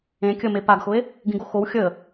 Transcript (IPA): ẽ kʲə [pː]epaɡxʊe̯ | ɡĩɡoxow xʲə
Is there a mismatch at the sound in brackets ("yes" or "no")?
yes